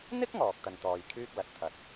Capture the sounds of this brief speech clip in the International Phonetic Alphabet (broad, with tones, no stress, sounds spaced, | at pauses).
n̪ ɪ˥ k̚ ŋ ɔː˨ k̚ t̪ ɐ˧ n t̪ ɔː˧ j kʰ yː˥ k̚ l ɐ˨ t̚ t̪ʰ ɐ˧ t̚